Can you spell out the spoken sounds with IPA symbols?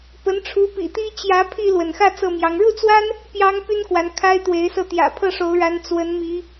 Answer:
p ə˨˦ n ʈ͡ʂʰ u˨˦ p ḭ˨˩ t̪ i˦ t͡ɕ j ä˨˦ pʰ i˧ l w ə˩ n x ä˥˨ t͡s ɤ˥˨ m j ɑ˨˦ ŋ ɻ u˥˨ t͡s w a˦ n | p j ɑ˦ ŋ p y˦ n k w a˨˦ n kʰ a˦ ɪ̯ t̪ w e˨˦ ɪ̯ s ɤ˧ t̪ j ä̰˨˩ pʰ ɤ˥˨ ʂ o˨˦ ʊ̯ ɻ a˨˦ n t͡s w ə˨˦ n m i˨˦

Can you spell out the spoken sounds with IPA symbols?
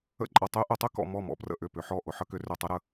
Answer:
ə̰˥˩ ǃʼ ʌ˧ tˤ y˧˥ ʔ ʊ˨˩˦ tˤ y˥ k ɔ̰˧ m ɔ˥˩ m ɔ̰˥˩ p r ə̰˥˩ ʔ ʏ˥˩ p ʏ˨˩˦ ħ ɔ˥˩ ʔ ʊ˧ ħ ə˥ k ʏ˧˥ r ʏ˧ tˤ ə˧˥ ɾ ə˧

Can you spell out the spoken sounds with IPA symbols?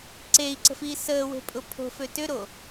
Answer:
ǀ e i̯ ǀ ə̤ f iː s əː w e̤ pʼ ʊ pʰ o̤ f ø t ʏ ɾ o

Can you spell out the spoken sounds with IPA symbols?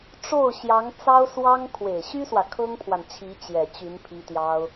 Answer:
ʈ͡ʂ o˥˩ ʊ̯ ɕ j ɑ˧˥ ŋ t͡s ɑ˥ ʊ̯ s w ɑ˥ ŋ kʰ w e˨˩ ɪ̯ ɕ y˥ s w ä˨ kʰ ɤ˥ ŋ pʰ w a˨ n t͡ɕʰ i˧˥ t͡ɕ j ɛ˨˩ t͡ɕ y˧˥ n pʰ i˥ t̪ j ɑ˥ ʊ̯

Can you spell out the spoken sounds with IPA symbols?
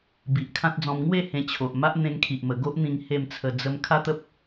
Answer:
b i˨ ʔ kʰ ã˦ t̚ d͡z ɔ̃˧ m ŋ w e˥˧ h ẽ˧ t͡ɕʰ o˨ ʔ m a˦ ʔ n̪ ẽ˧ ŋ kʰ i˨ ʔ m ə˨˩ ɡ o˦ ʔ n̪ ĩ˧ ŋ h e˥˧ m t͡sʰ ə˧ d͡z ə˧ m kʰ a˦ t̪ ə˦ p̚

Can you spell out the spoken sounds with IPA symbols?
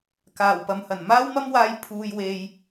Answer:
k aː˨˩ w p ɐ˨ m h ɐ˨˩ n m aː˥ w m ɐ˥ m w aː˧ j pʰ uː˧ j w e˧ j

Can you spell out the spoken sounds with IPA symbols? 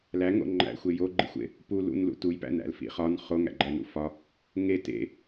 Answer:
l æ ŋ o̰ ŋ͡ǃ æ̰ xʷ e j o ɡ͡ǃ ḭ xʷ ḛ | p u l ṵ n l ṵ t u j p æ̰ n æ̰ l f ḭ χ ɒ n χ o ŋ æ̰ ɡ͡ǃ æ n ṵ f ɒ | ŋ e t ḛ

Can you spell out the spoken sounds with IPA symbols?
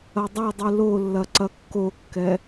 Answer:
ɐ dˤ ɐ dˤ ɨ l o lː ɐ ǀ ɐ kː o kː ɛ

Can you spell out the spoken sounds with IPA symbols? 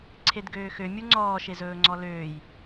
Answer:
ǀʰ e d ɡ øː x ø mʲ u ŋ͡ǀ ɔː ʃ e z ɵː ŋ͡ǀ ɔ l øː j

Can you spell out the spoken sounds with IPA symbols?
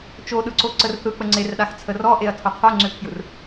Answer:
t͡ʃ o ɗ ɯ ǀ o ǀ ə r θ ɯ k͡p ə ŋ͡ǀ e r ɗ a x t͡sʰ ə r ɔ ʔ e ɐ̯ tʰ o qʰ o ŋ͡ǀ ø kʰ j ɯ r

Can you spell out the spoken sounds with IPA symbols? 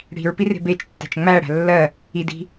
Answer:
ɽ i̤ ɹ p i r e̤ b e t͡ʃ tː æ̤ t͡ʃ ŋ͡m æ ɽ æ̤ lː ɜ | i d i̤

